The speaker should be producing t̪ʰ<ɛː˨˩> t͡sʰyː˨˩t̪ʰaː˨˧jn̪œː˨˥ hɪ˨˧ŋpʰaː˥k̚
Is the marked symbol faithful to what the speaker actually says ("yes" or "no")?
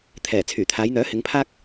yes